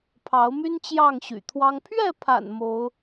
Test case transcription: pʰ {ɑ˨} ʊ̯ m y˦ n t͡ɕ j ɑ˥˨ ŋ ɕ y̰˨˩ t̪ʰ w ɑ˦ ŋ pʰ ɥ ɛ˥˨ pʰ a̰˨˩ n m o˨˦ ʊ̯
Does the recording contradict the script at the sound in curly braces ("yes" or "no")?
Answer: yes